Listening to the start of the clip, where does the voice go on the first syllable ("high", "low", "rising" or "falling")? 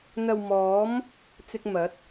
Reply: low